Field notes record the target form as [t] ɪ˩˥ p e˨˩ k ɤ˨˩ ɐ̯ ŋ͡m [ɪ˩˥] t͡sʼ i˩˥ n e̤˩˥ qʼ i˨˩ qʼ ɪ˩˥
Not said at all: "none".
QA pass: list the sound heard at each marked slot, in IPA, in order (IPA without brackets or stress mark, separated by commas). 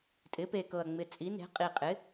tʼ, ɪ˨˩